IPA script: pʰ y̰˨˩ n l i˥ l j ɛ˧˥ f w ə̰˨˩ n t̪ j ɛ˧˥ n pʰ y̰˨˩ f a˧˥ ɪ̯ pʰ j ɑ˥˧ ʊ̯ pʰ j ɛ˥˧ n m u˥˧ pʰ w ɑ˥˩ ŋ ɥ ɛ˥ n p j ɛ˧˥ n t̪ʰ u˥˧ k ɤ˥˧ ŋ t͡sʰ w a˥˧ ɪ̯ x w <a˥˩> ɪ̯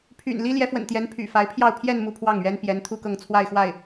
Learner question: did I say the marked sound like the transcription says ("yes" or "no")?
yes